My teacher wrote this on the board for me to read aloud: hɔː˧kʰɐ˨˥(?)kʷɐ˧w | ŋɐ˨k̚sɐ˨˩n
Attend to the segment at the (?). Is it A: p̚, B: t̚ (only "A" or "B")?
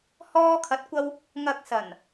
B